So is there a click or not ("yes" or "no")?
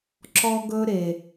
yes